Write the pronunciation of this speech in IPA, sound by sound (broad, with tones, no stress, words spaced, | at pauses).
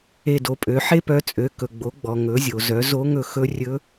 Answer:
e˧do˩˧pʼø˩˧ ħe˥pœ˧t͡sʼø˩˧ kɵ˩ɡ͡bo˩˧ɡ͡bɔ˩ ŋɵ˩˧zʲo˩zœ˩˧ zo˧˥ŋɵ˧ xɵ˧˥rʲɵ˧˥